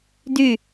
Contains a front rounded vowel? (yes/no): yes